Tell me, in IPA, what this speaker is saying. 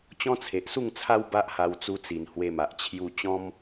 t͡ɕɔ̃˦t͡sʰe˨ʔsu˥˧ŋt͡sʰa˦w ba˦ʔha˧wt͡su˧t͡si˨˩n hwe˧ma˨ʔ t͡ɕʰju˧t͡ɕɔ̃˦m

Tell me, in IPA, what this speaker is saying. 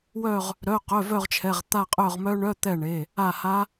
wœ˦˨ʁ | ɾœ˩˧˩qœ˩˧˩ vœ˦˨ʁt͡ʃʰɛ˩˧˩ʁ t̪a˦˨qʼœ˦˨ʁmœ˦˥ ɳœ˧˥˧t̪ɛ˦˨ɳe˩˧˩ | a˦˨ha˦˥

